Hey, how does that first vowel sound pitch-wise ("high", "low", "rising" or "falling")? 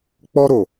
high